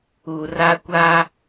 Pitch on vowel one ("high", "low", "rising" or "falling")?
low